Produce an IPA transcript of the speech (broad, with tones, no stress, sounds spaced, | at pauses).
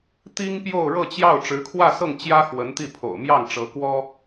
t̪ i˥ ŋ p j o˥˧ ʊ̯ ɻ ɤ˥˧ t͡ɕ j ɑ˥˩ ʊ̯ ʈ͡ʂ ɻ̩˧˥ kʰ w ä˥˧ s ɤ˥˩ ŋ t͡ɕ j ä˥ x w ə˧˥ n t̪ i˥˩ pʰ o̰˨˩ ʊ̯ m j ɑ˥˩ ŋ ʈ͡ʂ ɤ˧˥ k w ɔ˥